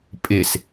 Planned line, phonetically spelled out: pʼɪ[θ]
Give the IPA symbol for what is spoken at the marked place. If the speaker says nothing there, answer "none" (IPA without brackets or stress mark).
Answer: s